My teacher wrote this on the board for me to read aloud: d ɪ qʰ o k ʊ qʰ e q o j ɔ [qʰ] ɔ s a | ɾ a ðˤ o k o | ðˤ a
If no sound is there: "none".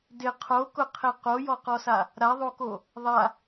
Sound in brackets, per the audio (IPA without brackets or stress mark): q